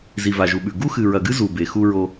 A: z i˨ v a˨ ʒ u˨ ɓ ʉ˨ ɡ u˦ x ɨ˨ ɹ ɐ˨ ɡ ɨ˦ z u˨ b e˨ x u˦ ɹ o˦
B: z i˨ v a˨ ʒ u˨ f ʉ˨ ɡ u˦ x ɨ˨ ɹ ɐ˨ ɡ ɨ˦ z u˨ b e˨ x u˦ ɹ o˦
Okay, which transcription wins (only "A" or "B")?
A